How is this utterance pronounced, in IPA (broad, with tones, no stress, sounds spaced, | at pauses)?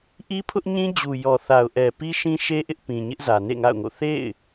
ʔ i˦ pʰ ʊ˦ ʔ ɲ ĩ˦ d͡ʑ u˨ j ɔ˨ θ a˨ ʊ̯ ʔ ɛ˨ p i˦ ʃ ĩ˦ ʃ e˦ ʔ ɪ˦ ʔ p ĩ˨ ɲ ɪ˦ ʔ z ä˨ n ḛ˦˨ ŋ a̰˦˨ ʊ̯ ŋ o̰˦˨ θ ḛ˦˨ ɪ̯